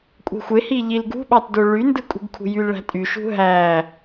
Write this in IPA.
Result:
kʷʼ e̤ xʷ e h i ʎ i l ɡ ṳ ɓ ɑ t d o ɭ y n d ɯ kʼ ṳ ɡ kʰ ṳ j y l ɭ æ̤ tʼ y ʃ ṳ ɦ æ

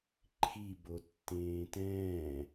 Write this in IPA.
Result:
ǃʰ i b o tː ẽː t ɛ̃ː

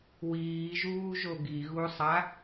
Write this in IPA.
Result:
w iː ʒ uː ʒ o ɡ i ɣ u sˤ a

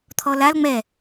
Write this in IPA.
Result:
t̪ʰ ɔ l a l ŋ͡m ɛ

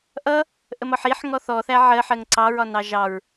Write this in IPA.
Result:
ʔ ʌ | ʔ ə m ɒ ħ i ħ ŋ ɔ θ ɔ θ æ ʕ ɜ ħ ɜ ŋ ǀ ɑ ɹ ɒ n ɑ ʒ ɑ ɹ

